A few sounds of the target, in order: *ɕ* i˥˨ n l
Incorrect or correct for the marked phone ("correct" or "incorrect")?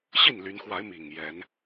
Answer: correct